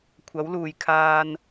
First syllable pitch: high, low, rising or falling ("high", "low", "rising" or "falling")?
rising